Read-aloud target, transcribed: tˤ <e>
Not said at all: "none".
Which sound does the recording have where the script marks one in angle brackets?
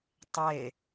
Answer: e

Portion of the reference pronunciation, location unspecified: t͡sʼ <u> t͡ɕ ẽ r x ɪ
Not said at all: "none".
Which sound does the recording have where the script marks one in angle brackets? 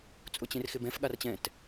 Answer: ʊ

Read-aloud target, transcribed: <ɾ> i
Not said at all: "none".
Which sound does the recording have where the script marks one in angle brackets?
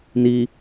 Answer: n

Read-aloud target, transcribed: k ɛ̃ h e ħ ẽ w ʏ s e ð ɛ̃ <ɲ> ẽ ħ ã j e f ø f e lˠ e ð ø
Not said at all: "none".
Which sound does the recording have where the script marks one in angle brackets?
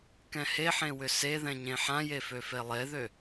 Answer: ɲ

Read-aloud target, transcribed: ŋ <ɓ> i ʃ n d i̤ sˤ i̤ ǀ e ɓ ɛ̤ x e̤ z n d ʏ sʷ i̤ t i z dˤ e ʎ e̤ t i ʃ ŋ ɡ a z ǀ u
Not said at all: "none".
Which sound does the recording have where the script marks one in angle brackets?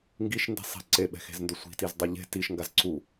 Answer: ɡ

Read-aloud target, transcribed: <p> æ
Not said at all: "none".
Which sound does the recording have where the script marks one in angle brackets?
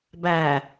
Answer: b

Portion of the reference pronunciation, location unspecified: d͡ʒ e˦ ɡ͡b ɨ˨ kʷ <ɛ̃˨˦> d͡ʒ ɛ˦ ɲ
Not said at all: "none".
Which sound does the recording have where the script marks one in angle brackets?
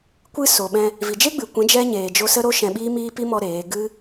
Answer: ɛ̃˨˦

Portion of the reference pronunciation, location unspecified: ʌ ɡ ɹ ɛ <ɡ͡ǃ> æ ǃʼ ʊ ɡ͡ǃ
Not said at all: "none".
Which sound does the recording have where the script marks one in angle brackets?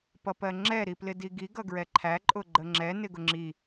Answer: ǃʰ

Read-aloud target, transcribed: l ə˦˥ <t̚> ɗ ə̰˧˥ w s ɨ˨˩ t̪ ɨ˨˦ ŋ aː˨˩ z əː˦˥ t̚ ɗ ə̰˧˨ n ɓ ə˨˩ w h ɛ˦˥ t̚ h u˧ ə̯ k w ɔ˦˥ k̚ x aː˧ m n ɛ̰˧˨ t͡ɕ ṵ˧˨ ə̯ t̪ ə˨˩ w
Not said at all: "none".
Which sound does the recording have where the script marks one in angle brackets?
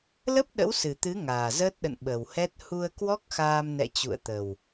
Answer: p̚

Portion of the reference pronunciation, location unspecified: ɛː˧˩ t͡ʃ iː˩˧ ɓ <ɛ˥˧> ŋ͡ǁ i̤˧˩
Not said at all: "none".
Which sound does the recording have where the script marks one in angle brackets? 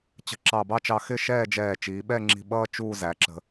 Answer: ɛ˥˧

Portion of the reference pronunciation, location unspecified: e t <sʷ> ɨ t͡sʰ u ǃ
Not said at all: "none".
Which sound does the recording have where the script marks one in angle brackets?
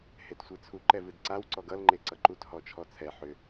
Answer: sʷ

